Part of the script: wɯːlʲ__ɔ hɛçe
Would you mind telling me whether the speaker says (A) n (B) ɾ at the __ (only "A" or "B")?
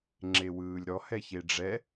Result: B